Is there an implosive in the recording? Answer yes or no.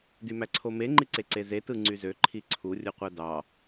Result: no